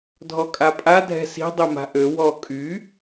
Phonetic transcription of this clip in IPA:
dʱɔkʼapʼa dʱɛ̤si̤ dˤɛma̤ʔø wɔ kʼy

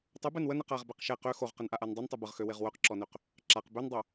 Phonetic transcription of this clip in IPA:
tˤubɛn wənɛq aʁbɛq ʃɛ qø xoʁqənʔaʔan dˤontˤu bəʁxøweʁ wœqǁɔnøq | ǁaq bøndˤo

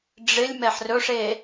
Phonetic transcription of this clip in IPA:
ɖ͡ʐɪlʲ mɛħrɵʂe

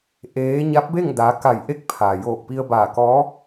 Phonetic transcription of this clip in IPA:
ʔeː˧˥ ɲa˧˥p̚be˥˨ŋ daː˧˥ ka˧˩jʔe˧˥k̚ pʰaː˩joː˧˩k̚ pi˧ə̯baː˧˩kɔː˧˥

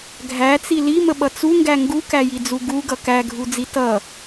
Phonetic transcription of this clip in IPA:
ɡʱæt͡si liməɓʌ t͡suŋɡæ ŋɡukæjid͡zu ɡuɡʌ kæɡʱud͡zi tʌ

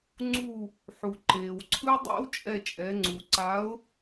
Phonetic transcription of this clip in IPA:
ŋ͡ǀu˧˩ | ħu˩ǃeː˩wǀʰɯ˦ dˤḛ˦wt͡ʃʼɛ˧˩t͡ʃʼɛ˩˧ ŋ͡ǀu˩ǀa˨˥ʊ̯

